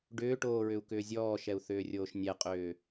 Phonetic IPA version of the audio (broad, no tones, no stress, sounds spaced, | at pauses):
ɖ ʏː ʈ oː ɹ ʏ u̯ k ʏː zʲ ɔː ʃ ɛ u̯ θ ʏː rʲ oː ʃ nʲ ɛ qʼ ʏː